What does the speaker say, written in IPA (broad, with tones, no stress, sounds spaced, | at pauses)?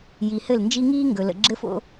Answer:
j i˨ h ɘ˦˨ l n d͡ʒ i˦ ŋ iː˦ ŋ ɡ ɵ˨ l ə̰˨ ɡ͡ǁ ɘ˦ f o̰˦